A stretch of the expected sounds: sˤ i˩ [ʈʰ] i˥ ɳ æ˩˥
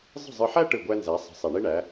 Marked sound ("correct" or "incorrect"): incorrect